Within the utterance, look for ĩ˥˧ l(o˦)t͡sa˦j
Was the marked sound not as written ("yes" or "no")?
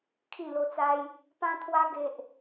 no